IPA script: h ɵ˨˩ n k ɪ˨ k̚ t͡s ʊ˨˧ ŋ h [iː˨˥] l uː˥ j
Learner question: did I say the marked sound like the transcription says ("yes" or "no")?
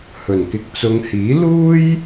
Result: yes